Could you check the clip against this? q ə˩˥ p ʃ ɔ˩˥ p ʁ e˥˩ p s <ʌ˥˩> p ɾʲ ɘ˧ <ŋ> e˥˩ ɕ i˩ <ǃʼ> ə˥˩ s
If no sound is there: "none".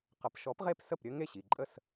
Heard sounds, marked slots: ə˥˩, ŋ, ǃʼ

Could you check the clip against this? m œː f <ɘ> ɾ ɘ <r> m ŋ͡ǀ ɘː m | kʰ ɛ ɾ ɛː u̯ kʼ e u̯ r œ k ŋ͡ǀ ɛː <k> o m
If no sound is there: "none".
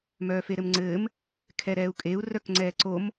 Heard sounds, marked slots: e, none, ǀ

